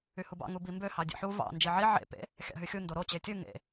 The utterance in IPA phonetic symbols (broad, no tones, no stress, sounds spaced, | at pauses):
y h u b ɑ̰ ŋ u b i m b ø h ɑ dʲ ḛ ħ u v ɑ̰ n d͡ʒ i ʕ i ʕ ḛ p ḛ | xʲ ɑ̰ ɦ y xʲ u n d o ɾ o t͡ɕ e tʲ ɯ ŋ ḛ